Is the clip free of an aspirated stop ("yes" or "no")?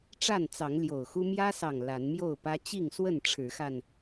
no